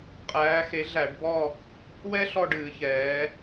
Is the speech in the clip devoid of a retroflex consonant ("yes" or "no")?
no